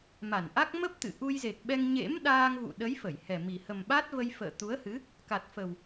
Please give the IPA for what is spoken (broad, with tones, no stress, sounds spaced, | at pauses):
m a˧˩ n ʔ a˦˥ k̚ m ə˦˥ p̚ t̪ ɨ̰˧˨ ʔ u˧ j z e˨˩ k̚ ɓ ɛ˧ ŋ ɲ ḛ˧˥ m ɗ aː˧ ŋ v ṵ˧˨ ɗ ə˨˦ j f ə˧˩ j h ɛ˨˩ m i˨˩ h ə˨˩ m ɓ a˦˥ t̚ v ə˧ j f ə̰ː˧˨ t̪ u˨˦ ə̯ h ɨ˨˦ | k a˨˩ t̚ f ə˨˩ w